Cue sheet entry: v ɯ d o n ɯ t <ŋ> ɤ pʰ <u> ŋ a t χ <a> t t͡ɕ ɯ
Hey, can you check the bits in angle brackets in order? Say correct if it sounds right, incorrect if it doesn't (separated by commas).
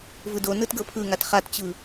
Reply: incorrect, incorrect, correct